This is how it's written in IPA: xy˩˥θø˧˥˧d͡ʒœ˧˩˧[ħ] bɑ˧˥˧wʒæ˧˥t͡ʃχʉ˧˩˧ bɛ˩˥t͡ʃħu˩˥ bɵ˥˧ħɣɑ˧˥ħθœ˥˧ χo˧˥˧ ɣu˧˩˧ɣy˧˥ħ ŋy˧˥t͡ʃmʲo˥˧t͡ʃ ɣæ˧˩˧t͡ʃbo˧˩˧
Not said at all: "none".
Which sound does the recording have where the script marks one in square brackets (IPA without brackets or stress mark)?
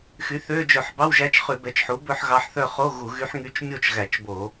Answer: ħ